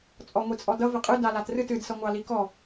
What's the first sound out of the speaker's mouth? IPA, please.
t͡sʼ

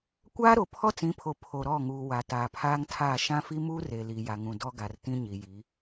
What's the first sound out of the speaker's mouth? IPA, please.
kʷ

